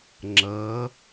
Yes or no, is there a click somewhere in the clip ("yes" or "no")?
yes